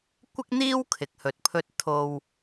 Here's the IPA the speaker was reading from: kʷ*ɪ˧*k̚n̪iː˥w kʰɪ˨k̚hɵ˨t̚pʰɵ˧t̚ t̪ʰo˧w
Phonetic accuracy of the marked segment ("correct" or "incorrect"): incorrect